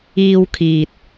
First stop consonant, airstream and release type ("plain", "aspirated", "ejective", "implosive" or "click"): aspirated